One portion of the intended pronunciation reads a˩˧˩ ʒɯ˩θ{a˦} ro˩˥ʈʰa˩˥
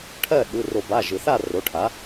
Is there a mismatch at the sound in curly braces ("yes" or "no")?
yes